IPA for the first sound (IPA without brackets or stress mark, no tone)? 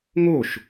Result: ŋ